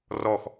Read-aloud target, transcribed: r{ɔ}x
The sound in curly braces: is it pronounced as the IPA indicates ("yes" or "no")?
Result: yes